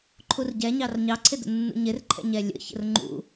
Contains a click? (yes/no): yes